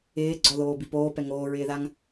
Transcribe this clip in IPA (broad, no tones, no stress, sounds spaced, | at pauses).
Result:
ɪː ɡ͡ǀ ɔ ð oː b i p oː p ɛ ŋ oː ɹ ɪː ð a ŋ